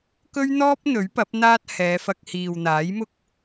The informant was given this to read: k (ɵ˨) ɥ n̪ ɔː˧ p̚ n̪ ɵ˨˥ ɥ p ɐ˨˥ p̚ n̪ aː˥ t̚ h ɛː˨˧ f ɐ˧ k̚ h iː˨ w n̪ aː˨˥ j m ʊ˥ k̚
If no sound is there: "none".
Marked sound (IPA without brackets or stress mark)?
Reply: ɵ˧